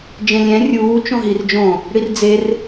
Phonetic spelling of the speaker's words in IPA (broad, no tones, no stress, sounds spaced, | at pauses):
d͡ʒ ẽ lʲ ɛ̃ rʲ uː t͡ʃ õ ɦ i r d͡ʒ õ | ɽ i r d͡z e r